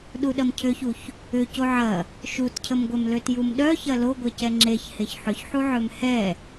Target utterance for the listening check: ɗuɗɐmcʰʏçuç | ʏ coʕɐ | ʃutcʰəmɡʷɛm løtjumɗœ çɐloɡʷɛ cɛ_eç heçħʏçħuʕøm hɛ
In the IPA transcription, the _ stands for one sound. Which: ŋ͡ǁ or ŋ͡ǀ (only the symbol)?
ŋ͡ǁ